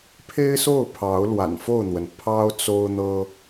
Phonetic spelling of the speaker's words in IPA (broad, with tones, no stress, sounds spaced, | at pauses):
pʰ e˦ ɪ̯ s o˥˨ ʊ̯ pʰ ɑ˨˦ ʊ̯ l w a̰˨˩ n f o˥˨ ʊ̯ n̪ w ə˩ n pʰ ɑ˦ ʊ̯ t͡s o˦ ʊ̯ n̪ ɤ˦